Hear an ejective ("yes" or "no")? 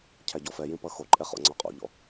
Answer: yes